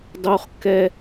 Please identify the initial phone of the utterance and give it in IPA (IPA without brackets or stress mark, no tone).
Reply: dˤ